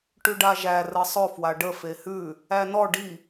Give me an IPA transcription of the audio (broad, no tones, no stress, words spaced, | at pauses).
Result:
ʈʉɖaʒæ rəsˤʊ fwaɖə fehʉ | ænɔ ɖi